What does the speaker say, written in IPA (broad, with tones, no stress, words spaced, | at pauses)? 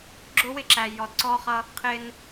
ɡ͡ǁʊ˦wɪ˦ǁæ˨ jɔ˨dǀɔː˦χʌ˦ | qʰɪː˦n